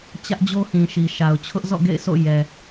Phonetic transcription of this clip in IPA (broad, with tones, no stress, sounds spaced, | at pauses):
t͡ɕ ä˦ ʔ d͡ʑ o˦ h ĩ˨ ʃ i˨ ʃ a˨ ʊ̯ t͡ɕʰ ʊ˦ ʔ z ɔ̰˦˨ ɡ ḛ˦˨ ɪ̯ sʰ o̰˦˨ j ɛ˨